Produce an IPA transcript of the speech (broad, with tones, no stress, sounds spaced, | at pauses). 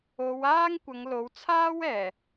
o˨˧ w aː˥ ŋ kʷ ɐ˨˧ ŋ l o˨˥ w t͡sʰ aː˥ w ɛː˨˩